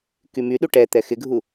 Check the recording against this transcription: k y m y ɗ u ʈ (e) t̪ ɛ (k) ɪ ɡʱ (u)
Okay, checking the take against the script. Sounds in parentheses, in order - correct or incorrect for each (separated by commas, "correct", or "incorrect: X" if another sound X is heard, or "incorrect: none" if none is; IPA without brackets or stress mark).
incorrect: ɛ, incorrect: x, correct